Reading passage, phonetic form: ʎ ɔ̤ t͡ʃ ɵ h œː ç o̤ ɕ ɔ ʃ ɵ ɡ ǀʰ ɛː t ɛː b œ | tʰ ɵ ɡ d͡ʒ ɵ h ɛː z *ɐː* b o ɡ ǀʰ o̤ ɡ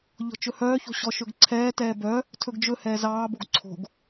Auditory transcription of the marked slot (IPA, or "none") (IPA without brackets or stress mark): ɑː